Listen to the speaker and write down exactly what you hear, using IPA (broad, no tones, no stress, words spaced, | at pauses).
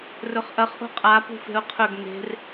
rɵχʔɐχ ʔo̤qʼa pṳfe̤ʊ̯qʰɵɡ ne̤r